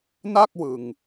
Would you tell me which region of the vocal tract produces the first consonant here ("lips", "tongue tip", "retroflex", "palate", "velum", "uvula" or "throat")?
tongue tip